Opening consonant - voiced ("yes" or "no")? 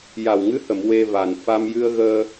yes